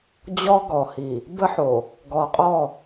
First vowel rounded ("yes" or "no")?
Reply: yes